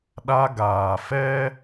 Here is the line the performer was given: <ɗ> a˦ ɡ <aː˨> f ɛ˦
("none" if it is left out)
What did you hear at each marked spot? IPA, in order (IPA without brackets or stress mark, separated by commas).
ɗ, aː˨